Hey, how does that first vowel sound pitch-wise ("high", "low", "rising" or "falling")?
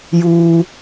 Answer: high